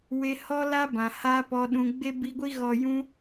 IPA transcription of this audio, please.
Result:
w e˧ h ɔ˦ l a˦ b ã˨ h a˦ p ɔ˧ ɗ ũ˧ ɡ͡b e˦ b i˧ ɡʷ i˦ ɣ ɔ˨ j ũ˧

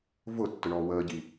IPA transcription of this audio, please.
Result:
v ʊ tː ʊ ɳ ɔː w əː ɟ i

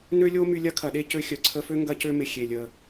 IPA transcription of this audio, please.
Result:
n ø˥ lʲ o˥ m y˧ lʲ ɐ˥ kʰ ɐ˩ ɗ e˥ c ø˧ xʲ œ˩ ǀʰ ə˧ f ø˥ ŋ ɡ ɐ˧ c ø˧ m ɪ˩ xʲ e˩ lʲ ə˩

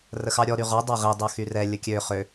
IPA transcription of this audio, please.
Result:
r ə x ɑ ɾʲ ɔ ɾ y ʁ ɔ dˤ a ʁ i dˤ ø x y r ɛ lʲ ə kʲ ø χ ø

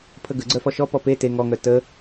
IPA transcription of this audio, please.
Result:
pʰ ə ɡ ə ɡ͡ǀ œ f ɔ ʃ ɔ p ɔ p e t e ŋ ɔ ŋ œ t ə

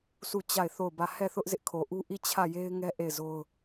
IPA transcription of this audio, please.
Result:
s u˦˨ t͡ɕ a˦˨ ɪ̯ θ o˦˨ ʊ̯ b ä˦˨ h ɛ˦˨ θ ʊ˦ ʔ z ɪ˦ ʔ kʰ o˨ ʔ u˦ ʔ i˦˨ t͡ɕʰ ä˦˨ j e˦ ɪ̯ ŋ ɛ˦ ʔ e˦˨ ɪ̯ z o˦ ʊ̯

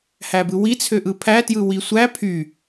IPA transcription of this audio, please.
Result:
h æ b ɯ w i t͡sʰ ø ʔ ɯ pʰ æ t j ɯ w i sʷ æ pʰ y

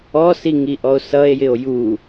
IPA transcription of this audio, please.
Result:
ɔ s i ŋ i ʔ ɔ o̯ s ʌ e̯ j ɪ o̯ j u

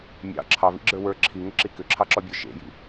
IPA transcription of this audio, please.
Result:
mʲ ɑ̰ ǁʰ ɑ v ḭ ɡ͡ǁ ə˞ w ə˞ ǁʰ i ŋ ʏ ǁ i k ʏ ǁʰ ɑ ǁ ɔ bʲ ə˞ ʃ ḛ j ḭ

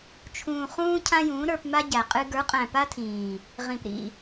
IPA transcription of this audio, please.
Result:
t͡ʃʰ ũː˨ χ ũː˧ cʰ ã˦ j ũː˨˦ ɾ ə˞˧ p m a˦ ɟ æ˨ qʼ ɨ˦ ɡ ə˞˨˦ qʼ æ̃˨ p a˦ tʰ ĩː˨ | ʁ ĩ˨ p ɾ ḭ˦˨

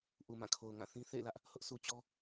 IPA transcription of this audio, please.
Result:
ʔ u˨ m ã˦˨ kʰ o˨ ʊ̯ ŋ ã˦˨ θ ĩ˦ θ ḛ˦˨ ɪ̯ l ä˦ ʔ | h ʊ˦ ʔ s u˨ t͡ɕ ɔ˦

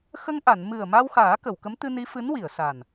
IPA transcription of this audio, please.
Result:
x ə˧ ŋ ʔ a˨˩˨ n m ɨ˨˩ ə̯ m a˧ w x aː˨˩˦ k ə˨˩˨ w k ə˧˥ m t̪ ɨ˧ n i˧˥ f ɨ˧˥ n w i˨˩˨ ə̯ s a˨˩ n

